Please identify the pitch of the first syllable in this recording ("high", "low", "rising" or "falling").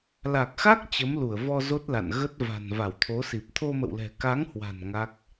low